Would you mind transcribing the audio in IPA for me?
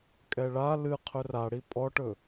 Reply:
kʼ ɛ ɭ a l ɨ qʰ ɵ r a ɽ i pʼ ɔ ʈ ɵ

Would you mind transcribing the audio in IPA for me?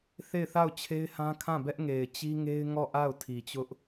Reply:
θ e˦˨ ɪ̯ θ a˦˨ ʊ̯ t͡ɕʰ e˦ ɪ̯ h ã˦ kʰ ã˦˨ b ɛ˦ ʔ ŋ e˨ ɪ̯ t͡ɕ i˦ ŋ e˦ ɪ̯ ŋ ɔ˦˨ ʔ a˦˨ ʊ̯ tʰ i˨ t͡ɕ ʊ˦ ʔ

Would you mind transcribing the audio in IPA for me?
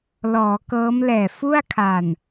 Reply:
l ɔː˩˦ k ɤː˦˥ m l ɛː˨˩ f u˥˩ a̯ kʰ a˨˩ n

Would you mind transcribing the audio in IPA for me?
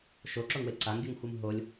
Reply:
ʃ o ǁ o ŋ w e ǀ a ŋ ɡʲ ɯ ŋ xʷ ɯ m ɦ o lʲ

